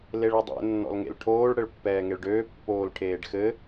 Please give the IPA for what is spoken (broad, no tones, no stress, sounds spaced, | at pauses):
l e ɭ ɘ dˤ ḛ nː ɔ̰ l ŋ ḛ l ʈʰ oː ɭ ɽ ɘ ɭ pː ɛː ŋ e ɭ ɖ øː pː oː l ʈʰ eː ɖ x ɘ